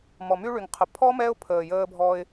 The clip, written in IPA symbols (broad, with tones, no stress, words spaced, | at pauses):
mɔ˨my˧ɭy˨ŋqʰə˨ pʰɔ˦ mɛ˦ʊ̯pʰəː˨jəː˧bʱɔ˧ɪ̯